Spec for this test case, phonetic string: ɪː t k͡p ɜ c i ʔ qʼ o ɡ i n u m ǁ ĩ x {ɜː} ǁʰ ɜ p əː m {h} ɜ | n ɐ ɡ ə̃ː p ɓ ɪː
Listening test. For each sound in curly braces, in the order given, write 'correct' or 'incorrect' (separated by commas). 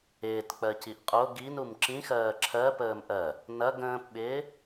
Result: correct, incorrect